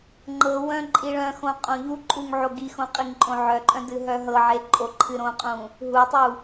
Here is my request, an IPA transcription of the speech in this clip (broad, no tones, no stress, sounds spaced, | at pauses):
ŋ͡ǃ ɤ w œ̃ ǃʼ i ɭ œ̃ x õ qʼ õ ʎ u ǃʼ u ŋ ʕ o ɡ i x õ qʼ i ŋ ǃʼ õ ʕ œ ǃʼ œ̃ d ɨ ɦ œ ɦ ɤ ʕ e ǃʼ o ǃʰ ɨ ɾ õ qʼ ũ | ɦ u tˤ u